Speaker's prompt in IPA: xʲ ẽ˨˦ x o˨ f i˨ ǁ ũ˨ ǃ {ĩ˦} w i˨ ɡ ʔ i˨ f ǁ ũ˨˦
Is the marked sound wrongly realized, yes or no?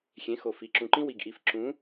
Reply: no